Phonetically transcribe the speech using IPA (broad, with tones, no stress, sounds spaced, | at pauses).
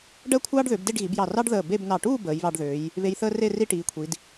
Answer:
ɖ əː˥˧ kʷʰ ɑː˥ ɖ ð ø˩˧ b d e˥˧ ɖ ɣ i˩˧ b j ɑ˧˩ r ɑ˥ ɖ ð əː˧˩ b e˥˧ b n ɑ˧˩ ʈ uː˥˧ b əː˩˧ j β ɑ˧ ɖ ð øː˩˧ j | β e˧ j θ əː˥ r e˥˧ r i˥˧ ʈ iː˩˧ kʷʰ i˩˧ d